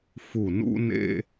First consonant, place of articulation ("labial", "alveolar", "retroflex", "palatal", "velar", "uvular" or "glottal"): labial